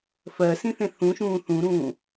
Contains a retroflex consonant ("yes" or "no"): no